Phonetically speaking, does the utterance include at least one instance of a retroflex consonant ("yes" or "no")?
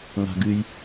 no